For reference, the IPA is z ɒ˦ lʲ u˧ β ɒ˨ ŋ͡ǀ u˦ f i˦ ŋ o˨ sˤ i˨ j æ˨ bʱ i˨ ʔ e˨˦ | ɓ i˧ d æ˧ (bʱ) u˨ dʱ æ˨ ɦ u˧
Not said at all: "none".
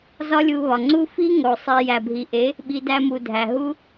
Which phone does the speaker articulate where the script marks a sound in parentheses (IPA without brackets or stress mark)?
m